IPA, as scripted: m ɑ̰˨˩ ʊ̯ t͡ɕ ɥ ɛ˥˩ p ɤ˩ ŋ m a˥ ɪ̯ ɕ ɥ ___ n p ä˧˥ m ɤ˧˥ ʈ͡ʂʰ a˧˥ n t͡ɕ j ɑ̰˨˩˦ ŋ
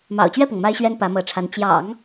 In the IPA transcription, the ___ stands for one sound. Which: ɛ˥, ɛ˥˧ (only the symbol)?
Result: ɛ˥